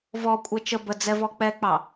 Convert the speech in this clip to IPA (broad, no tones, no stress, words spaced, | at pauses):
vɔ kʷʼɛt͡ʃə bə d͡zɛvɔk͡pɛk͡pɑ